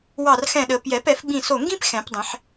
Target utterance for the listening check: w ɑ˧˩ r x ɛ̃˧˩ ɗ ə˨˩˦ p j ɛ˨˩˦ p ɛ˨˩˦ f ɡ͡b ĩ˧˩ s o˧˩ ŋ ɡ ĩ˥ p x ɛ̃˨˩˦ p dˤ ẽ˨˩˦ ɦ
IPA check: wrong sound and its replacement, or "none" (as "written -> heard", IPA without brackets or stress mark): ɦ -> ħ